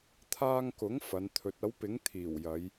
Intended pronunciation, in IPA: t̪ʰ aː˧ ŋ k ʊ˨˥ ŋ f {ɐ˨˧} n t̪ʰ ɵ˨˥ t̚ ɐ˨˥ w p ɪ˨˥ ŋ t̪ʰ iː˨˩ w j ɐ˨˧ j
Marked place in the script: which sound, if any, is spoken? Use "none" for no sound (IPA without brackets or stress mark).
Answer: ɐ˨˧